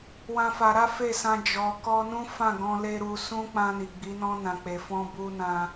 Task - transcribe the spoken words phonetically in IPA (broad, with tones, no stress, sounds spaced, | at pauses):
w ã˦ f a˧ ɾ a˦ f e˦˨ s ã˧ d͡ʒ ɔ˧ k ɔ˦ n ũ˦ f ã˦˨ ɡ ɔ̃˧ l e˦ ɾ u˧ s ũ˦ k͡p ã˧ n i˨ ɡ͡b i˨˦ n ɔ̃˧ n ã˨ k͡p e˨ f ɔ̃˧ b u˧ n ã˧